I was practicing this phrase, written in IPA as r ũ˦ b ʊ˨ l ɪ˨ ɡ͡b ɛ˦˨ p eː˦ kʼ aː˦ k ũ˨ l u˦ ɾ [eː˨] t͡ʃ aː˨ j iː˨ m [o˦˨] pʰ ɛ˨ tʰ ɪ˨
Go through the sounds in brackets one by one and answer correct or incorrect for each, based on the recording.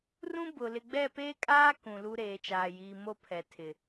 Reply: correct, correct

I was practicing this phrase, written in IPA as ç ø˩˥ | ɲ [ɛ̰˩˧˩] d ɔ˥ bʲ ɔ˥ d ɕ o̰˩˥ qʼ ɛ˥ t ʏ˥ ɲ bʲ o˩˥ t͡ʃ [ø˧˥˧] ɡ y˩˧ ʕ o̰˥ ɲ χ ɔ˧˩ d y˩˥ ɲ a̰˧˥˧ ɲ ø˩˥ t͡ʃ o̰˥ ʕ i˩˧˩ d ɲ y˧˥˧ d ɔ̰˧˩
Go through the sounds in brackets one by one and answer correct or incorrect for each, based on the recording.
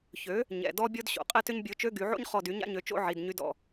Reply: correct, correct

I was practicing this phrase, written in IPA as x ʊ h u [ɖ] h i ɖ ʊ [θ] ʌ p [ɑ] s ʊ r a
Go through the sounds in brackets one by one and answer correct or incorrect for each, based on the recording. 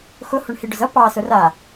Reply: incorrect: ɳ, incorrect: z, correct

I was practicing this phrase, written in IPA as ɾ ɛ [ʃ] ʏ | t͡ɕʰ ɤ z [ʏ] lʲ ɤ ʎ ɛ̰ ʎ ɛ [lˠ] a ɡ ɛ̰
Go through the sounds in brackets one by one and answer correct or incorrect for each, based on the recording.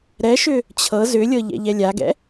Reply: correct, correct, incorrect: lʲ

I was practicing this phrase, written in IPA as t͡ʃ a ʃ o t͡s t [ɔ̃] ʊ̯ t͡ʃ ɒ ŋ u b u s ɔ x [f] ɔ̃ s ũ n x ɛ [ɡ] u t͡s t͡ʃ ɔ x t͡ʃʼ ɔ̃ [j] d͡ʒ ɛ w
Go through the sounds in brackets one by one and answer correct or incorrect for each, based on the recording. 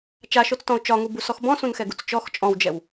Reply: correct, incorrect: b, correct, incorrect: w

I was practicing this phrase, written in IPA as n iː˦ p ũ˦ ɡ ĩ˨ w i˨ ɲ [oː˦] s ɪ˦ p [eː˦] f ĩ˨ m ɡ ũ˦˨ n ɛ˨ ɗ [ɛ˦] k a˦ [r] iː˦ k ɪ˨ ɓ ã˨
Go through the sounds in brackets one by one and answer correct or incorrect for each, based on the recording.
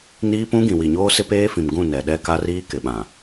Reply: correct, correct, correct, correct

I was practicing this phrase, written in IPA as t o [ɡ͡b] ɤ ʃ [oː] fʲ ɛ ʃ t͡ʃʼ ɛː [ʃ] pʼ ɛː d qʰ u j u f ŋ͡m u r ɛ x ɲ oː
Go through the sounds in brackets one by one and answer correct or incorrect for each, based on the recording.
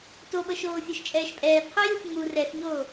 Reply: incorrect: ɓ, correct, correct

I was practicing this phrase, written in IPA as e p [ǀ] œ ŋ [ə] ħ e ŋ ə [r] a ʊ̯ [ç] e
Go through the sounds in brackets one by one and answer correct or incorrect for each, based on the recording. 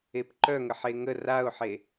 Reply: incorrect: ǃ, correct, correct, incorrect: ħ

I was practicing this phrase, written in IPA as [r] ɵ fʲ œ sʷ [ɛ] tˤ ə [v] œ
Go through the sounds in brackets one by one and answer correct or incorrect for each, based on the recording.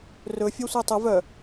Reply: correct, correct, correct

